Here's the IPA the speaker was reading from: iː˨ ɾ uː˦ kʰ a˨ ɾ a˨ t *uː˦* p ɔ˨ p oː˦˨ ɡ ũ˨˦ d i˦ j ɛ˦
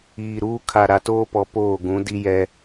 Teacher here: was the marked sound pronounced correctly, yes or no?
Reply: no